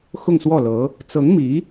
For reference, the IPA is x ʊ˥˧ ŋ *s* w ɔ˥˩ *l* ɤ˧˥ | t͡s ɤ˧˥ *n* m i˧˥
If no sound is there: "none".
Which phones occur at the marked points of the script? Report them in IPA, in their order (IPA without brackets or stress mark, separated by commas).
s, l, ŋ